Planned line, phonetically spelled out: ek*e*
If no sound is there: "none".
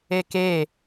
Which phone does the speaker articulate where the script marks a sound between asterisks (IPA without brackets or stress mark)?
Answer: e